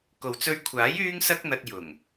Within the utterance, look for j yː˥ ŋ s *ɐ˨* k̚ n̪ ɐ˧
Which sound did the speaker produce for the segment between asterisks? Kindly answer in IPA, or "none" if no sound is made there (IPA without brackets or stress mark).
ɐ˥